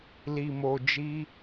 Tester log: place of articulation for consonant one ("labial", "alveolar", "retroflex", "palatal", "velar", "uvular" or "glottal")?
alveolar